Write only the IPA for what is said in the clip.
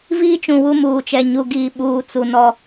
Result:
viː˦t͡ʃũ˨ wu˦muː˨t͡ʃɛ˨ ɲu˨ɡiː˨ ɓuː˨ t͡su˨nɔ˦

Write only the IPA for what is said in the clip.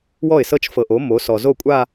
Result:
wɔ˥˩ɪ̯sɤ˥˧t͡ʃ fɤ˨ʔo˩˥ mo˩˥sɔ˨ zo˥˩kʷʼa˥˧

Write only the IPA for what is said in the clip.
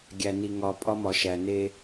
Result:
ɡʲæ˨ni˨ ŋɒ˨ pʼɒ˦mɒ˨ʃæ˨ ne˧

